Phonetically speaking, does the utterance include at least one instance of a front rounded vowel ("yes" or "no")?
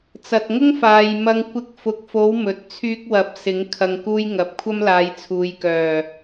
yes